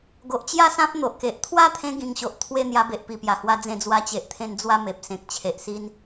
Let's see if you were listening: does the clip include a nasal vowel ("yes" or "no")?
yes